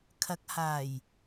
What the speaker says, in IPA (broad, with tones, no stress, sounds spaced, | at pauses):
kʰ ɐ˨˥ k̚ h aː˨˩ j